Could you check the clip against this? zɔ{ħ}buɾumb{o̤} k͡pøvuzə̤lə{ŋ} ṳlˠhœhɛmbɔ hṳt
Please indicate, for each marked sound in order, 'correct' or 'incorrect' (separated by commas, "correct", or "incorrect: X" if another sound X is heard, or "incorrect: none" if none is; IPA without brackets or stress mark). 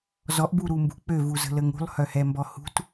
incorrect: ʔ, incorrect: ṳ, correct